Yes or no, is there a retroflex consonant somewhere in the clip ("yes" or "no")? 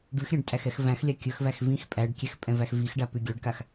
yes